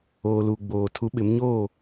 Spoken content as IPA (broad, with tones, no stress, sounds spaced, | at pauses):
oː˨ l uː˨ ɡ͡b oː˨ tʰ u˨˦ ɓ ɪ˨˦ m ɲ oː˦˨